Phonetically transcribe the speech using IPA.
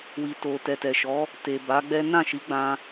wi˨to˨ tɛ˨tɛ˨ʃɔ˨˦ | te˨ ba˨˦ɡ͡bɛ˦ nã˦˨ʃi˨˦ ɡ͡bã˧

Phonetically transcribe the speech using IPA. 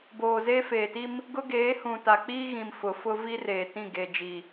boː˨zeː˦feː˨ti˦m | ɡʊ˦ɡeː˨˦hũ˨ ta˨k͡piː˦ɣĩ˨m fʊ˨fʊ˦ vi˦reː˨tĩ˦˨ ɡe˨ d͡ʒi˨

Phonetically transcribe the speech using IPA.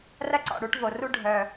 rɐ˦ǀɔ̰˨ɽu˨˦ʈ vo˨ ru˦ ɖʱœ˨

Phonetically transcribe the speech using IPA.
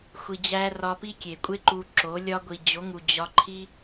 xʷi˧d͡ʑæ˦ rɒ˧pi˦kʲe˨kʷʼe˦ ǃu˧ǁo˨˦ lʲɒ˧ɡʷi˨d͡ʑo˨˦ŋu˨ d͡ʑɒ˧ǃʰi˦

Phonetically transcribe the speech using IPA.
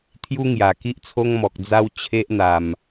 t̪ʰju˦ŋja˨˩ ki˦ʔt͡sʰo˦ŋmɔ˨k̚d͡za˦w t͡ɕʰe˦ʔn̪a˨˩m

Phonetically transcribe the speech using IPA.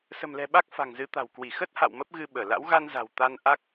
sə̤˨˩mlɛ̤˨˩ ɓa˦˥k̚fa̤˨˩ŋzɨ˨˦t̪a̤˨˩w kwi˧˩xə˦˥t̚ ha̰˧˨w mə˦˥p̚ɣɨ˧ ɓəː˧˩la̰˧˥w ɣa˧nza̤˨˩w t̪a˧nʔa˦˥k̚

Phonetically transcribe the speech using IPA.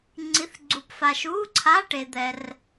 ŋ͡ǀi˧˥˧θɡ͡ǀu˧pfa˧ʃ u˧˥˧ǀʰa˧˥˧ ʈe˧d̪ɛ˧r

